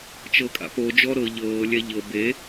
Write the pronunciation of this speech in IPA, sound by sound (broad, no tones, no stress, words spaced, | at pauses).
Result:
t͡ʃɤkʼa̰po d͡ʒɔɾɤ ʎɤː lʲɛʎɤ be